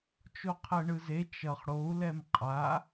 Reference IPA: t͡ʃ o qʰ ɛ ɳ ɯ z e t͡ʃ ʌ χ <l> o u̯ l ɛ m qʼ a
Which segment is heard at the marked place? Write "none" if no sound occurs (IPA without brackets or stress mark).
ɽ